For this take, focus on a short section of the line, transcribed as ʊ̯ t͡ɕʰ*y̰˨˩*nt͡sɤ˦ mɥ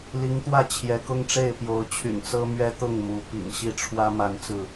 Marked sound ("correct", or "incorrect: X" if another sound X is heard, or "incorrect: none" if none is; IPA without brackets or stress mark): correct